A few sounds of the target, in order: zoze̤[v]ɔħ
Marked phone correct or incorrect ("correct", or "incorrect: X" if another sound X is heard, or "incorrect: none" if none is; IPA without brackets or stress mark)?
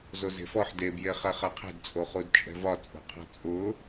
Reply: incorrect: f